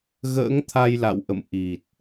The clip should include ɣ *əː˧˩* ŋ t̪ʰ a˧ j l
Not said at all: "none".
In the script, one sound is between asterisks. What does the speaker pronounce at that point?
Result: ə̰ː˧˥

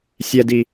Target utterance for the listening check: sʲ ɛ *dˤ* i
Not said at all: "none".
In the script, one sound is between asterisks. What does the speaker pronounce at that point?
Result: d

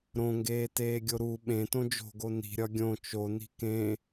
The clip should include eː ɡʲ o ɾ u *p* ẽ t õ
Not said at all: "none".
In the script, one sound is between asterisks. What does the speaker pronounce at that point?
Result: ɓ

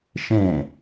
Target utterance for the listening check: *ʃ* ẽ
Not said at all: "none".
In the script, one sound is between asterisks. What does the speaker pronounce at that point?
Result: ʃ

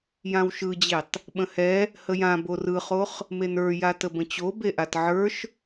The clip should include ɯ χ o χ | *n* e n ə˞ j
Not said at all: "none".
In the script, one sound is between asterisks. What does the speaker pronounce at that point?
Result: m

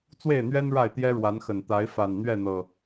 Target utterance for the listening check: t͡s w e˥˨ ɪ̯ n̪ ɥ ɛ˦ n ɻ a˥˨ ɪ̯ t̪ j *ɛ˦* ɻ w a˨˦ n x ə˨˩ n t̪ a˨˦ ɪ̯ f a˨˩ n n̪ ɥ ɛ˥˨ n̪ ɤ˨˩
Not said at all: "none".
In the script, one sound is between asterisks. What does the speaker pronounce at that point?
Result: ɛ˦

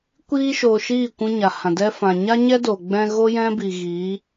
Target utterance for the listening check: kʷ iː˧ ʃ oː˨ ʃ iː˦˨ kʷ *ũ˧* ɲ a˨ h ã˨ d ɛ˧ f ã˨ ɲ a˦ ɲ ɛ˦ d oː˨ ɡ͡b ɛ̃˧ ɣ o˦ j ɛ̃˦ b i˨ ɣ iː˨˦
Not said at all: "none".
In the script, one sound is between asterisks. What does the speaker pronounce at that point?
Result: ũ˧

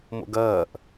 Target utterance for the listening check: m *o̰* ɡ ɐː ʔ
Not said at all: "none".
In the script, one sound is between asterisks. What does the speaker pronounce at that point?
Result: o̰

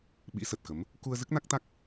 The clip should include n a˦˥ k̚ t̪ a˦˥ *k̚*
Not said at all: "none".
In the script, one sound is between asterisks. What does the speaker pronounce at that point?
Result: k̚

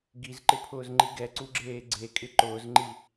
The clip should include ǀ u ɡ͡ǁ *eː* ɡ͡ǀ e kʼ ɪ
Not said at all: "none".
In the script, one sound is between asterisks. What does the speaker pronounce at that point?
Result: eː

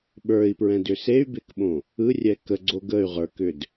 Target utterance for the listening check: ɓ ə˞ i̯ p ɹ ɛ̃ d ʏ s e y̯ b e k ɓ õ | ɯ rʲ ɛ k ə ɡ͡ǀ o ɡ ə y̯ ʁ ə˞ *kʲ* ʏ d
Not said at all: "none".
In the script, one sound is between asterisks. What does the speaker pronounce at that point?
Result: k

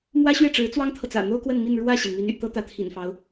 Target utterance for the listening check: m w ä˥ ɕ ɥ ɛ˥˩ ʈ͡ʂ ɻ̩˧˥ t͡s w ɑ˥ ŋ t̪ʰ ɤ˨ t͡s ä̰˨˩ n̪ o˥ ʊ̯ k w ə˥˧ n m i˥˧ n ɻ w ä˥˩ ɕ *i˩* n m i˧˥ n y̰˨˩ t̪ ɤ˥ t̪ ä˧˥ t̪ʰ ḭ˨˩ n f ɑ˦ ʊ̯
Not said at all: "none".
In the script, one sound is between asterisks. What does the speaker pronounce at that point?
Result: i˩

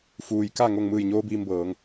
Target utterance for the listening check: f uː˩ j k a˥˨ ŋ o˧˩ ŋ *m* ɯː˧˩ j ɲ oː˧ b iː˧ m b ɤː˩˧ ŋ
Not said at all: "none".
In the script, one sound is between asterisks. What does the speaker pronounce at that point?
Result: m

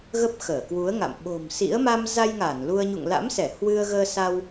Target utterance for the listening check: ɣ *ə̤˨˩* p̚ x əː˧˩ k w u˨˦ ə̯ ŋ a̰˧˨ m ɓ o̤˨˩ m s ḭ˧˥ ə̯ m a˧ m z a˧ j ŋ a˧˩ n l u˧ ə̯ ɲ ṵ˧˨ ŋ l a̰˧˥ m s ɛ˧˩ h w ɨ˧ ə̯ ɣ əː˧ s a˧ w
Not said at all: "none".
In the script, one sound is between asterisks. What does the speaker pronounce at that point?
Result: ə˦˥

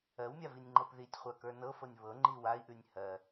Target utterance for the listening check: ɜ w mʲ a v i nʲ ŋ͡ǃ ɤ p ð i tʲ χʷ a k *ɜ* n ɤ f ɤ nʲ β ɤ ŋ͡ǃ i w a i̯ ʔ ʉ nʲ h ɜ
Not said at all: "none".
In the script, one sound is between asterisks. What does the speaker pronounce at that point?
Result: ə˞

